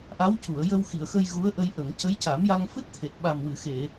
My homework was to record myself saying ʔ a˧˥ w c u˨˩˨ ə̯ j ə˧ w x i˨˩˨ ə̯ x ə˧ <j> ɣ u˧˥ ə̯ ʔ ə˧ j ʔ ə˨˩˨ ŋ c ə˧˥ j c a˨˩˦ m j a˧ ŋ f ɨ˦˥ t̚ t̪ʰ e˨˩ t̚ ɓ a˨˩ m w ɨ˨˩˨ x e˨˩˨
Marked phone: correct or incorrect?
correct